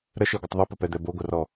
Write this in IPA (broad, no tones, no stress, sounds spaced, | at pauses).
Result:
ɾ ə ʃ e ɡʷ ə tˤ ðˤ ɯ p ə p ɛ d̪ ɛ b o ɡʷ ə r ɔ